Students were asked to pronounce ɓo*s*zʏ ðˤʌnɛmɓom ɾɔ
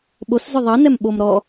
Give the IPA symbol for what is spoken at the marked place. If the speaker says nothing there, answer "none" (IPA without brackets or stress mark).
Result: s